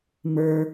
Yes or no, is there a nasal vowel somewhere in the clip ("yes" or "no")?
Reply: no